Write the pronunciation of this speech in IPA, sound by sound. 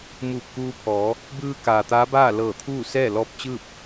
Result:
m uː˧˩ p̚ k uː˧ pʰ ɔː˩˧ | b ɯː˧ k aː˩ t̪ aː˧˥ b aː˥˨ l ɤː˧˩ t̪ʰ uː˥˨ s ɛː˥˨ l ɔː˧ p̚ t͡ɕ ɯː˥˨ p̚

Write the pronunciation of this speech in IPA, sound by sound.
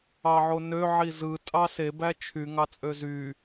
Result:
ɑ ʕ o n ø ʕ i z ɯ tʼ ɑ s e b æ t͡ʃʰ y ŋ ɑ t͡sʼ ø z y

